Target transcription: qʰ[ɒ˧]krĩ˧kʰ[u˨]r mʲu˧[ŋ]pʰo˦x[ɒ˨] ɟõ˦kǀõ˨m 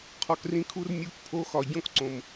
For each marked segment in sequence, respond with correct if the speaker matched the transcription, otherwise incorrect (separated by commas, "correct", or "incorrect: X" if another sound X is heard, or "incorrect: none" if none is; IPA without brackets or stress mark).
incorrect: ɒ˨, incorrect: u˧, incorrect: k, correct